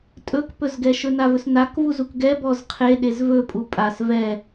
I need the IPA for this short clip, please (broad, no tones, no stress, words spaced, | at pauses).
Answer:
tʼɵkpɵzɡɛʃɵ navɵsnak vuzukɡɛ bɔzqʰeɗez vɵpʼu pʼas vɛ